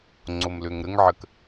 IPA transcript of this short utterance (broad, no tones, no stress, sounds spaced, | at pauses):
ŋ͡ǀ o m l ø ŋ ɾ ə ŋ ʕ ə k